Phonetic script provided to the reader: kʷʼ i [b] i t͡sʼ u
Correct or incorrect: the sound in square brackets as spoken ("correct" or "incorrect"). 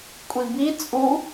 correct